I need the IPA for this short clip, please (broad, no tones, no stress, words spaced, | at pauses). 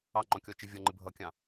ɑŋ͡ǃɔ̃kʲɔt͡ʃɪ vʲʌŋ͡ǃɪ bʱʌkʲɑ̃